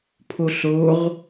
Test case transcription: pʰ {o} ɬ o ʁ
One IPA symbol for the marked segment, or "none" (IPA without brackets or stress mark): o